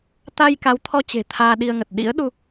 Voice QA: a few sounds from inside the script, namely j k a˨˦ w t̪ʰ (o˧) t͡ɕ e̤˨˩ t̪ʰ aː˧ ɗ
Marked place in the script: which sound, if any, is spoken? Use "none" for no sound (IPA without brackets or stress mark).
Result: ɔ˧